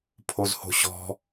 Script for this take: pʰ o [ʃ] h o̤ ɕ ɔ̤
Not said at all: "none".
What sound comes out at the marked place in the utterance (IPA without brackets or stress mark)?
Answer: z